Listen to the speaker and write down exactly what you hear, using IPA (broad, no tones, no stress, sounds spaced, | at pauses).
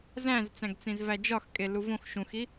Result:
z æ̃ z t͡s æ̃ ɡ t͡s ĩ z v æ d͡ʒ ɒ x kʼ e l u v õ x ʃ ũ x i